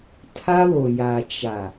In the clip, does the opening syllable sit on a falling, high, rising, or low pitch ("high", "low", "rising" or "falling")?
high